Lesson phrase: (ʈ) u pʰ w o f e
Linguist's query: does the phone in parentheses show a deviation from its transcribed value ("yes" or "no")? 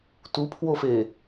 yes